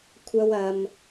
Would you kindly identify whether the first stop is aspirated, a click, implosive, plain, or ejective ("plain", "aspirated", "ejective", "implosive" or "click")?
aspirated